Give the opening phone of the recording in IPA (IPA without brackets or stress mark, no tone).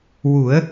w